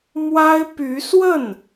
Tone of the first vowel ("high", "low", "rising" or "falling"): high